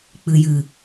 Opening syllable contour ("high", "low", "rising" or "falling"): low